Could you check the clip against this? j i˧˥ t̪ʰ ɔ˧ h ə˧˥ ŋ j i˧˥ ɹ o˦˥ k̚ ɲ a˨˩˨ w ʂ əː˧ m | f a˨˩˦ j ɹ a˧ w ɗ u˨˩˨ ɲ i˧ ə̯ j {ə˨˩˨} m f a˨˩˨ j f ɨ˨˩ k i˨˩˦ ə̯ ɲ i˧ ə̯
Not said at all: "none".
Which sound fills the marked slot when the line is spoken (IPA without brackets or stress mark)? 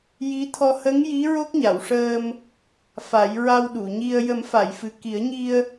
ə˨˩˦